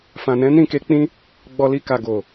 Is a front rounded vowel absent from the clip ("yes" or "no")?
yes